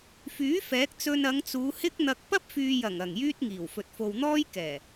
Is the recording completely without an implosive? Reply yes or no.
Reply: yes